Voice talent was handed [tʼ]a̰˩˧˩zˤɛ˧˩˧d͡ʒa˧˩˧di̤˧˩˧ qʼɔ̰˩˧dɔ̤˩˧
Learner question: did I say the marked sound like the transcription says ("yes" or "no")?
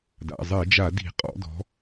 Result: no